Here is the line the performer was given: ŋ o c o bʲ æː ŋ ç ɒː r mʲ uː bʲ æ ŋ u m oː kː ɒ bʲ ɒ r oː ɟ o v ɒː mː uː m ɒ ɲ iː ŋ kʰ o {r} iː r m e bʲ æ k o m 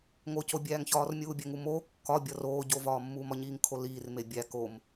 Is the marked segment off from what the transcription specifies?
yes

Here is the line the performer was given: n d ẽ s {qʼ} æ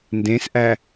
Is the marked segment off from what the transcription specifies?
yes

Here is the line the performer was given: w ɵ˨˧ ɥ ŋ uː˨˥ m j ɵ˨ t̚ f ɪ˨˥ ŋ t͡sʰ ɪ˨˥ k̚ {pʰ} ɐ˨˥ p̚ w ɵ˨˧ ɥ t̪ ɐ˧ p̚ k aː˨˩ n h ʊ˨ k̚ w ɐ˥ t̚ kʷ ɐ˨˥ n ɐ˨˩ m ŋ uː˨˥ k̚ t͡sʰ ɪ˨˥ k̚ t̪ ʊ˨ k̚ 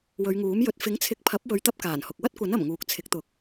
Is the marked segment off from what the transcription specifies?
no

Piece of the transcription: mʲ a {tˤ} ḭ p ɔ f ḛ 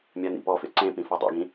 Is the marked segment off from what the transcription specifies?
yes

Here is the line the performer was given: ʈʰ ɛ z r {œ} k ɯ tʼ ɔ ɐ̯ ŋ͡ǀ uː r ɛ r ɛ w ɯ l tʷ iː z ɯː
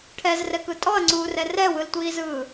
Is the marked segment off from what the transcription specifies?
yes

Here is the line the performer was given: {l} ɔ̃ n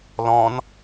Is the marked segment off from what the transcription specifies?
no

